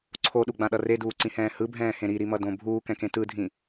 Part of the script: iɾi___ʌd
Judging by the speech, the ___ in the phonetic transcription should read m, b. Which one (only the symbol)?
m